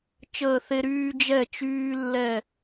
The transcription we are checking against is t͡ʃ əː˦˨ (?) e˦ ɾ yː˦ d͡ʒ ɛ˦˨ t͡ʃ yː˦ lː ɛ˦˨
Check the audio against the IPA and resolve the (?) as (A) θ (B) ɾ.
A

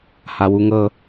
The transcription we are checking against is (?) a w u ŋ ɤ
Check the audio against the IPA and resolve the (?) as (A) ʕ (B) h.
B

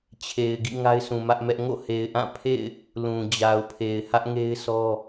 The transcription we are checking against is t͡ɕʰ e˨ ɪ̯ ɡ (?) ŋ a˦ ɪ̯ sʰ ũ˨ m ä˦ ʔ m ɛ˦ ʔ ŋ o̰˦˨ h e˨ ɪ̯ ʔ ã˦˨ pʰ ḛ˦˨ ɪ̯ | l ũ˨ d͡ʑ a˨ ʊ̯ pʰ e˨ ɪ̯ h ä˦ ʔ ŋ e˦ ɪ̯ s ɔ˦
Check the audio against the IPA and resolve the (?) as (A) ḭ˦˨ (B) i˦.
A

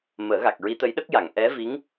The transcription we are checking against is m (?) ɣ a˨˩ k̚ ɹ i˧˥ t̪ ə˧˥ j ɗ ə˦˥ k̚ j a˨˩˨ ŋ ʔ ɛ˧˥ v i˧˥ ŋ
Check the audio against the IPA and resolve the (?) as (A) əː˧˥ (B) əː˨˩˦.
B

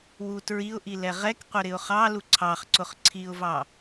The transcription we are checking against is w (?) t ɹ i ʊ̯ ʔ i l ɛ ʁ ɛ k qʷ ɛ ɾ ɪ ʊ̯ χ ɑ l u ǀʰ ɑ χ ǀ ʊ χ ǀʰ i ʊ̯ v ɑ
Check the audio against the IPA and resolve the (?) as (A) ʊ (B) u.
B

